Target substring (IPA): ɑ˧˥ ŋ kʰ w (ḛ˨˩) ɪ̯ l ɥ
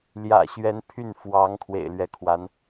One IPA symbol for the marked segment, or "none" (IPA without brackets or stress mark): ḛ˨˩